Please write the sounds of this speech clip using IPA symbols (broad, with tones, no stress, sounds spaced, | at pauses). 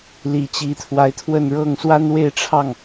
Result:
l i˨˩ t͡ɕ i˧˥ t̪ʰ w a˧˥ ɪ̯ t̪ʰ w ə˥˧ n ɻ ɤ˥˩ ŋ s w a˥ n w e˥˧ ɪ̯ ʈ͡ʂʰ ɑ˥˩ ŋ